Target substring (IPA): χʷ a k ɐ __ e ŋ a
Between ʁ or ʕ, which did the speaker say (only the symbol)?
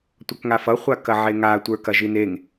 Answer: ʕ